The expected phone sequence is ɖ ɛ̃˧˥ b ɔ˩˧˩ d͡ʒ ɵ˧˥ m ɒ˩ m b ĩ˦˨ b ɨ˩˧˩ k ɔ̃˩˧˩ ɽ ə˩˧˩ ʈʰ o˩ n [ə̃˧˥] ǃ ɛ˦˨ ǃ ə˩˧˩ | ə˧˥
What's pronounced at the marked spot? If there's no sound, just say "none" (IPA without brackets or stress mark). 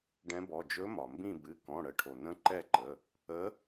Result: ə̃˧˥